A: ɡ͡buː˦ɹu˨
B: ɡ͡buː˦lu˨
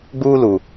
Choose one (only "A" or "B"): B